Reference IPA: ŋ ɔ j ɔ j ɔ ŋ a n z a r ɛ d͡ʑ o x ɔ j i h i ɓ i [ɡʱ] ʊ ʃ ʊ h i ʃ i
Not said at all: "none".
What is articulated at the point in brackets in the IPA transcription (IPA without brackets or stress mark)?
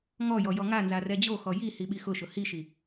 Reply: x